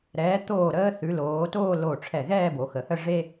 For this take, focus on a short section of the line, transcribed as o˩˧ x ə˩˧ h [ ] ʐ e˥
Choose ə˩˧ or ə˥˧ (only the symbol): ə˥˧